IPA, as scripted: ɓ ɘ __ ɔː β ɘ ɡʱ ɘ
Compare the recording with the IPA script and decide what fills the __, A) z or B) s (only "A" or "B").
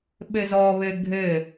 A